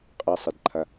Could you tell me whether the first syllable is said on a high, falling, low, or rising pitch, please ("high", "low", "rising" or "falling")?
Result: low